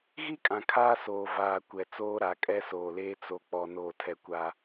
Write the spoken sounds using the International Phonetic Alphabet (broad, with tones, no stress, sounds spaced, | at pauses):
ɣ i˦ kʼ ã˨ kʰ aː˦ s oː˨ v aː˨ kʷ ɛ˨ t͡s oː˦ ɾ a˨˦ kʼ ɛ˦ s oː˨ l eː˦ t͡s o˨ k͡p ɔ˨ n oː˨ tʰ ɛ˨ kʷ a˦